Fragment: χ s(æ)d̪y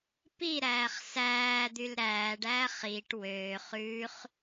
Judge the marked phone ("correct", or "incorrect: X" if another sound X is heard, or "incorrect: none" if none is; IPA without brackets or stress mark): incorrect: æː